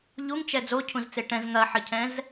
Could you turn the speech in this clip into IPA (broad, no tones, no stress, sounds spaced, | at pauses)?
ʎ u ŋ t͡ʃ ɛ d͡z o cʰ ũ z t͡s e ʈ ɛ̃ z ŋ ɐ ħ ə cʰ ɛ̃ z